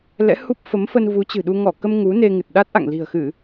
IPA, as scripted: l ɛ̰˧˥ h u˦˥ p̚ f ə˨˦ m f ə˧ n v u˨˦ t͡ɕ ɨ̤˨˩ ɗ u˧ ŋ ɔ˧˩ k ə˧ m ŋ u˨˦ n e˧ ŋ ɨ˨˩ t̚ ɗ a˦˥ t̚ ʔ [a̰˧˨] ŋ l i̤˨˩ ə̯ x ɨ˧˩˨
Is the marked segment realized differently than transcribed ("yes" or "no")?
no